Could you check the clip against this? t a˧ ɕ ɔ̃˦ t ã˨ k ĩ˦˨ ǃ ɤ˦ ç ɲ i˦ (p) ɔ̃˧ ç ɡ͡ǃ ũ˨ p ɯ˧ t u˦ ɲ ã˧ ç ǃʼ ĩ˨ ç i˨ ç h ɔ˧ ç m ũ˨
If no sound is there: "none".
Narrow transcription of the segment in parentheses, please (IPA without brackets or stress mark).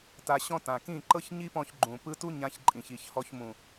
p